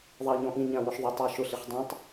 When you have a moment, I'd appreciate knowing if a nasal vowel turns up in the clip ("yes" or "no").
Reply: yes